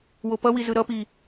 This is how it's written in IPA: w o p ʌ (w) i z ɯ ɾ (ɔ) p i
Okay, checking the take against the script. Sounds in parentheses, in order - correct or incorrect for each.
correct, incorrect: ʌ

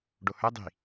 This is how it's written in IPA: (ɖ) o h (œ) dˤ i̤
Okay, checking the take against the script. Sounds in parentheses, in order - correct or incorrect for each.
correct, correct

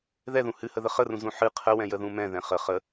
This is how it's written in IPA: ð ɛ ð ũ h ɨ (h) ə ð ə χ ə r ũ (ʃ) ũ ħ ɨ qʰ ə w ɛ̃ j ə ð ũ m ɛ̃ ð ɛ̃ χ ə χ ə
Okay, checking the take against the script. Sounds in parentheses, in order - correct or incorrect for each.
correct, incorrect: z

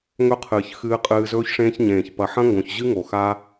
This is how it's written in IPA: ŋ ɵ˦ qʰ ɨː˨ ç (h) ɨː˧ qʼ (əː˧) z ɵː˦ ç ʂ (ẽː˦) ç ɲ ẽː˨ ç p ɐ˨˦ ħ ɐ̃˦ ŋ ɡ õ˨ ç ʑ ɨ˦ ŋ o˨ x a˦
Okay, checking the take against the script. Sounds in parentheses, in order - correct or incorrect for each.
incorrect: x, incorrect: ɨː˧, correct

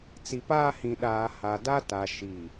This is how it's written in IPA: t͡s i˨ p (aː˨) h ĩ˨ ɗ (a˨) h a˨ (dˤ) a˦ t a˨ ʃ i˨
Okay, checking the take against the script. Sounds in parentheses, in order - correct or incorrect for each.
incorrect: aː˦, incorrect: aː˨, incorrect: d

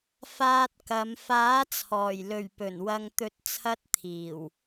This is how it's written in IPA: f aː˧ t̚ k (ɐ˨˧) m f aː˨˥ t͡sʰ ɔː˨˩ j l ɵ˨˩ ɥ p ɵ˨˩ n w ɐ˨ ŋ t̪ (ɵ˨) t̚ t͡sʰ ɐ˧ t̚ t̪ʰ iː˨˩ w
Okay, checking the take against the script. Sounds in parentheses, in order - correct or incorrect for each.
correct, incorrect: ɵ˨˥

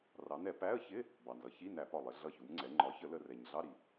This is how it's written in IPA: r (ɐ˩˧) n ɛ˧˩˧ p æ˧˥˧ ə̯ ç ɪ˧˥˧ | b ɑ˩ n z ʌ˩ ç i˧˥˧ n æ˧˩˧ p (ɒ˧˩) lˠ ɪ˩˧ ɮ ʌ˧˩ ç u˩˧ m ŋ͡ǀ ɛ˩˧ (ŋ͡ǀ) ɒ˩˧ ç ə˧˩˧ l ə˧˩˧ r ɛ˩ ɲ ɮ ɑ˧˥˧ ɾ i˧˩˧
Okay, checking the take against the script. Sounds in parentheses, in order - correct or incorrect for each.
incorrect: ɑ˩˧, correct, incorrect: ŋ͡ǃ

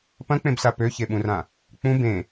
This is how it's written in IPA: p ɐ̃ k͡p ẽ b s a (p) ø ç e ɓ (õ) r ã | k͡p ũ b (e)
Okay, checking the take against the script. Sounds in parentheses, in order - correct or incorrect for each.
correct, incorrect: ũ, incorrect: ẽ

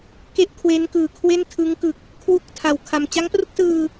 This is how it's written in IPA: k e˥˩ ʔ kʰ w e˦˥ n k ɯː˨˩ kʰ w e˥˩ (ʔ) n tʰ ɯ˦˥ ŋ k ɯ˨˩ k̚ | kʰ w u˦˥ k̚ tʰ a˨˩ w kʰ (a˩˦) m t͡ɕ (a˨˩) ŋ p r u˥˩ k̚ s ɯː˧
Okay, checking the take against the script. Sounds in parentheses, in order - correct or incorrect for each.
incorrect: none, incorrect: a˧, incorrect: a˦˥

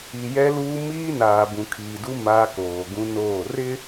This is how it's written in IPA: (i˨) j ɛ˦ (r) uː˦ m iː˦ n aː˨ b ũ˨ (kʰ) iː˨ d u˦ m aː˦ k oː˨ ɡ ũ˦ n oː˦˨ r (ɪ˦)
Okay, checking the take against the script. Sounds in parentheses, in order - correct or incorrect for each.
correct, incorrect: l, correct, correct

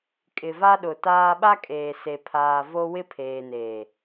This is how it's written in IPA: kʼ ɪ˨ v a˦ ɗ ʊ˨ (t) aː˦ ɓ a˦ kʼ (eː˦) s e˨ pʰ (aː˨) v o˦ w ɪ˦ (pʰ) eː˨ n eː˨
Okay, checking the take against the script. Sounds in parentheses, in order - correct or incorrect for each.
correct, incorrect: eː˨, correct, correct

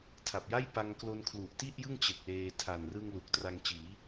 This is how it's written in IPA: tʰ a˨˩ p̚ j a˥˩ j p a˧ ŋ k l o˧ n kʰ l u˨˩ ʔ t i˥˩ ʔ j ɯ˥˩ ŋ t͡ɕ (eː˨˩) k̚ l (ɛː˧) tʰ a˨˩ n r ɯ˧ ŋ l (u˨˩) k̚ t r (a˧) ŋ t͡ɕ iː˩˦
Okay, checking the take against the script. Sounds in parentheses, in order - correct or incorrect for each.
incorrect: e˨˩, incorrect: eː˧, correct, correct

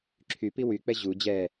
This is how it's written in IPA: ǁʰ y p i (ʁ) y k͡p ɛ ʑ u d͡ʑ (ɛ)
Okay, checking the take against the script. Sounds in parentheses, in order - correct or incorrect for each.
incorrect: w, correct

